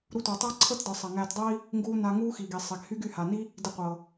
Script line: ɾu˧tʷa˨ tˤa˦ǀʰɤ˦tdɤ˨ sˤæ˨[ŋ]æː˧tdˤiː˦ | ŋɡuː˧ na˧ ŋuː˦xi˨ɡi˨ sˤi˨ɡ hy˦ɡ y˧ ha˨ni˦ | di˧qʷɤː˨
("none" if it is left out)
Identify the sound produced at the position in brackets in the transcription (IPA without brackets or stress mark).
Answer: ŋ